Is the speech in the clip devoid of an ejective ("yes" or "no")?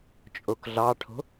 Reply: no